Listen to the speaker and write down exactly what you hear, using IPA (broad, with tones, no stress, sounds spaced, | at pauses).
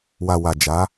w a˨ w a˨ d͡ʒ a˨˦